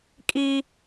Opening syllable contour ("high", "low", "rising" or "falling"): high